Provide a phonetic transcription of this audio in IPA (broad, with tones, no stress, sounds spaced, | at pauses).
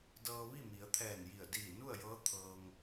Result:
d ɤː˧ ʋ i˥˨ m i˩˧ ə̯ t̪ʰ ɛː˧˩ n j i˧˩ ə̯ d iː˧˩ n u˥˨ ə̯ j ɤː˧˥ t̪ʰ ɤː˧ ŋ